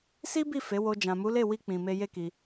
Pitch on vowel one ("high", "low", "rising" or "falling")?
high